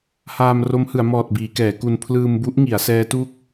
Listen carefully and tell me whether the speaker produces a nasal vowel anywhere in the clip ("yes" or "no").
no